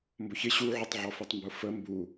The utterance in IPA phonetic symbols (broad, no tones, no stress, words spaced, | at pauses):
mbʊçɪ ɕuʕʊtˤ ʕɔfɛtˤmbʊfə mbu